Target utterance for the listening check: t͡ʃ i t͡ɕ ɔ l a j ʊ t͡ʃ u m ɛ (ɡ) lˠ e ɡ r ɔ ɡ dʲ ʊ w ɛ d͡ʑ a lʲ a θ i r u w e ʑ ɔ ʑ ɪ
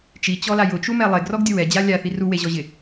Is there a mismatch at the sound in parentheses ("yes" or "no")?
yes